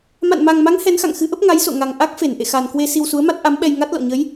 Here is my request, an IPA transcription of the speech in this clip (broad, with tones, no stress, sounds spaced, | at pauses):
m a̰˧˨ n m a˨˩ ŋ m a˨˦ ŋ h ɛ˨˦ n x a̰˧˨ ŋ x ɨ˨˦ ʔ ə˦˥ p̚ ŋ a˨˦ j s o̰˧˨ ŋ a˨˩ ŋ ʔ a˦˥ k̚ f e˧˩ n ʔ ḛ˧˨ x a˨˩ n k w e˧ s i˧ w s u˨˦ ə̯ m a˦˥ t̚ ʔ a˨˦ m ɓ ɛ˧ j ŋ a˦˥ t̚ l ɔ̰˧˨ ɲ ə˨˦ j